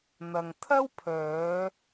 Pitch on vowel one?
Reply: low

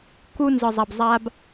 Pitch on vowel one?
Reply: high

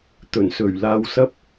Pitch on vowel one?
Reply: low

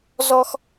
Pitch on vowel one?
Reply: high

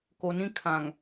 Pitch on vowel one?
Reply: low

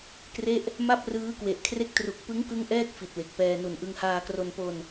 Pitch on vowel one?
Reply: falling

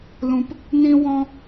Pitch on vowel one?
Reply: low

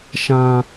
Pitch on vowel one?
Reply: high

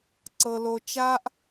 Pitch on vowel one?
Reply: low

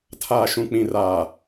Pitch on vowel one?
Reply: low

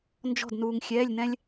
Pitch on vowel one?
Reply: falling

